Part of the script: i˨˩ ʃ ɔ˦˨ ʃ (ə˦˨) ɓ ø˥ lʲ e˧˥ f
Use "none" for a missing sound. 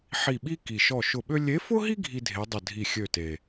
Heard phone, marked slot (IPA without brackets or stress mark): ʊ˦˨